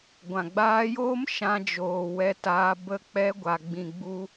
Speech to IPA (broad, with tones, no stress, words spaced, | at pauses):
ɡʷã˨ɡ͡baː˧joː˦m ʃã˧d͡ʒoː˨ wɛ˧taː˧ bə˧k͡pɛ˧ ɡʷa˨ɡ͡bĩ˨ɡ͡bu˧